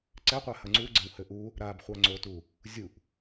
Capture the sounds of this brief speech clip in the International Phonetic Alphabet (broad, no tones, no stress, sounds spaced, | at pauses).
ǀ ɛ qʷ a h ɐ ŋ͡ǀ u ɡ͡ǀ ɐ w h ɘ ʔ u | ɾ a b χʷ a ŋ͡ǀ o t u | zʲ u ʔ